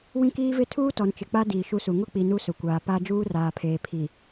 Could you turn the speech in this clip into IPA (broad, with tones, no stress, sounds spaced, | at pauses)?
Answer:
w ĩ˦ k iː˦ v ɪ˦ tʰ uː˦ t ɔ˨ n t͡ʃ ɪ˨ k͡p a˦ d iː˨ ʃ u˦ s u˨ ŋ ʊ˦ k͡p i˨ n u˦ s ʊ˨ kʷ aː˨ p a˦ d͡ʒ uː˦ r aː˨ pʰ eː˨ pʰ i˨